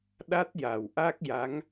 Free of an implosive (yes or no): no